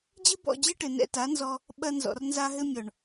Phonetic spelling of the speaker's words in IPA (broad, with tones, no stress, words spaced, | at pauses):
d͡ʑɨ˦bɔ̰˦˨d͡ʑɨ˦ʈɘ˨ nɛ̰˧ta˨˦nzɔ˧ | ɓɐ˧nzɔ̰˨rnza˧ ɦɘ˦ mʲɔ˨ɳ